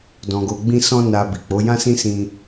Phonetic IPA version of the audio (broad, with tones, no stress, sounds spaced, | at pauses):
d ɔ̃˧ ɡ o˧ ɡ͡b ĩ˦ s ɔ̃˦ n a˧ b i˨ k͡p o˨˦ j ã˦ s ĩ˦ s ĩ˦